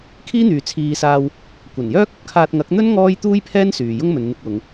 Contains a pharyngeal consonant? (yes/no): no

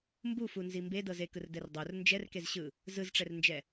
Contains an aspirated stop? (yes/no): no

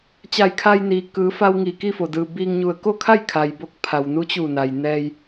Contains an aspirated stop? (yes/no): yes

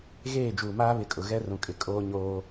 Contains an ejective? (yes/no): yes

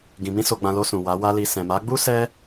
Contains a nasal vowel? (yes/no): yes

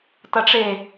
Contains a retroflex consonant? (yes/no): yes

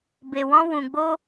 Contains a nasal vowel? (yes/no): yes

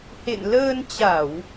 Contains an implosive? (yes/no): no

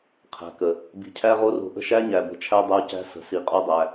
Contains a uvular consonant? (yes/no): yes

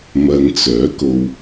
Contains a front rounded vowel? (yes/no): yes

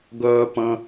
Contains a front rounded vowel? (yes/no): yes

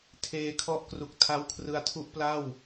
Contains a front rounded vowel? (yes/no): no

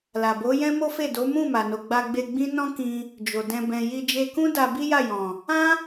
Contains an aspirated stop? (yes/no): no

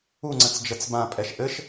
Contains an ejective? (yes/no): yes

